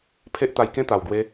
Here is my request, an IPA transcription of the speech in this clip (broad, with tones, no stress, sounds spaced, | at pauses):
pʰ e˦ ʔ t̪ a˧ j k ẽ˥˧ t̪ a˨˩ w ɡ w e˧